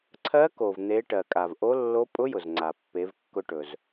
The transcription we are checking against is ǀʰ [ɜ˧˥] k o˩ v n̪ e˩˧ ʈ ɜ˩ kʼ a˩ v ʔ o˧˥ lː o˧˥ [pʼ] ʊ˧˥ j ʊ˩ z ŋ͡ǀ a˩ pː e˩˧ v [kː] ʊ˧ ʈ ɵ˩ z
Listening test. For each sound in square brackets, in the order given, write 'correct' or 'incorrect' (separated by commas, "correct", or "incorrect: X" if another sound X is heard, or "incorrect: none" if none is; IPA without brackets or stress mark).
correct, correct, correct